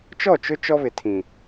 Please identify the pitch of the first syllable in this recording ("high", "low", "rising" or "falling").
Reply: falling